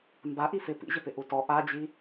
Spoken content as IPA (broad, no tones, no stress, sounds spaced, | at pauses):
m b a ʔ i f ɪ p ḭ ʑ ɪ p ɪ ʔ u t ɔ ʔ a d͡ʑ i